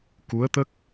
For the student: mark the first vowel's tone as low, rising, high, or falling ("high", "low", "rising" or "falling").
rising